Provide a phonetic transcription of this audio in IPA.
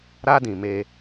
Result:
ɾ a˦ d ĩ˨ m eː˦

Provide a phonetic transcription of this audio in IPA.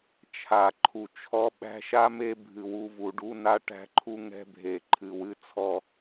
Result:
t͡ʃʰ a˨ ǃʰ u˨ t͡ʃʰ ɔ˦ ɓ æ̤˦ ʃ a˦ m e˦ bʱ ɨ˨ w u˦ v u˨ ɖ u˦ n a˦ ʈ æ̤˦ ǃʰ u˦ ŋ ɛ̤˦ bʱ e˨ ǃʰ ɨ˨ w ɨ˦ t͡sʰ ɔ˦

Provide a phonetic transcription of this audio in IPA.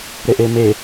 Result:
ɾ e ʔ e m e

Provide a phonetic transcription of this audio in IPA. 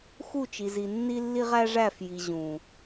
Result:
x u˦˨ t͡ʃ i˨ z i˨ nː i˦ lː i˦ ʁ æ˦ ʐ æ˦˨ f j i˨ ʑ ũ˨

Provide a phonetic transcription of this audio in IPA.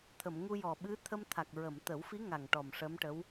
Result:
t̪ʰ ə˨˩˨ m ŋ u˧ j ɔ˨˩ ɓ ɨ˧˥ t̪ʰ ə˧ m t̪ʰ a˨˩ k̚ ɹ ə˨˩˨ m t̪ ə˨˩˦ w f i˧˥ ŋ a˨˩ ŋ ʈ ɔ˨˩ m ʂ ə˧˥ m ʈ ə˧˥ w

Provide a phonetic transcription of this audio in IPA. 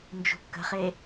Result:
n d͡ʒ ṳ kː ə̤ χ e

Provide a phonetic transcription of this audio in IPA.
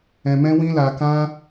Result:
ɛ̃˧ m ɛ̃˦ w ĩ˦ l a˧ k ã˦

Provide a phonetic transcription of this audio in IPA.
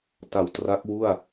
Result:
t a˨˩ w t r a˦˥ k̚ w u˥˩ a̯

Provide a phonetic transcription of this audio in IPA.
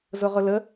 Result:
z ʊ ʁ ʊ l ə

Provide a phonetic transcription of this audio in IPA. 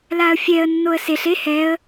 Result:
l a ə̯ fʲ ɛ ə̯ nː o ə̯ s e ɬ e h ɛ ə̯

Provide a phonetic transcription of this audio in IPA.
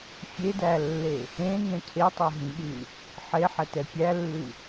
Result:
fʲ e d æ lː e | ẽ ŋ ɛ̃ cʰ e tˤ ɛ ɦ ĩ ɠ ʉ | ħ e ħ ɛ t ɛ pʲ æ lː ʉ

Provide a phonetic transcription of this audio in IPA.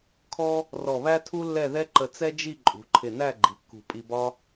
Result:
kʰ ɔ˥ | r ɔ˧˩ β æ˥ tʰ u˥ lː ɛ˥˧ ð ɛ˥ ǃ ə˧ t͡s ɛ˥ d͡ʒ i˥˧ ǃʼ ṳ˩˧ ǃʰ ɪ˧˩ n æ˥˧ ɡ͡ǃ i˩˧ kː ṳ˧˩ pʼ i˧ b ɒ˥

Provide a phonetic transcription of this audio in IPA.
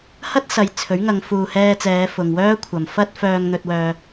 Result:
h ɐ˥ t̚ s ɐ˨˧ j t͡sʰ ɵ˨˥ ɥ ŋ ɐ˨˧ ŋ f uː˨ h ɛː˧ t͡s ɛː˨˧ f ʊ˨ ŋ w œː˥ kʷʰ ɐ˨ m f ɐ˥ t̚ f œː˧ ŋ n̪ ɵ˧ t̚ w œː˧

